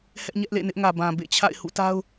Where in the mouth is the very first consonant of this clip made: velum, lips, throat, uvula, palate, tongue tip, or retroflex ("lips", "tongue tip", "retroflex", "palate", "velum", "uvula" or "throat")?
throat